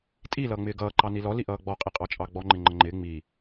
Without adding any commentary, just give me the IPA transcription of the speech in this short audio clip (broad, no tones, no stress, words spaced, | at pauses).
tʼi lʌːŋ͡mɪːɡʌː ǃɑnilɔ liʔʌːɡ͡bɔ qʼiqʼɑt͡ʃʼɑɡ͡bɔ ŋ͡ǃɪŋ͡ǃəŋ͡ǃɪː ŋ͡mi